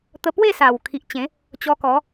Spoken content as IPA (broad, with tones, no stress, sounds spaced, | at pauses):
t̪ ə˧ p w e˥˧ s a˨˩ w kʰ i˨ ʔ t͡ɕ ẽ˨˦ | t͡ɕ ɔ˧ k ɔ˨˦